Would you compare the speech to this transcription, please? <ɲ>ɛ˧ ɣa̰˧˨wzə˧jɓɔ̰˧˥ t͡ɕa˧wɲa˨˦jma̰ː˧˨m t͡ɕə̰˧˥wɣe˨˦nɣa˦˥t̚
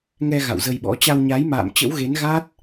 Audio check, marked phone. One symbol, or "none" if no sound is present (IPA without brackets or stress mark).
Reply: ŋ